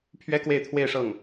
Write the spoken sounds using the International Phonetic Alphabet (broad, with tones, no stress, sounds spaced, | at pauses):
pʰ ɥ ɛ˥ k w e˥˧ ɪ̯ t̪ʰ w e˥˧ ɪ̯ ʂ ɤ˥˩ ŋ